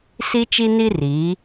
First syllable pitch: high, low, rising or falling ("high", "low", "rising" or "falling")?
high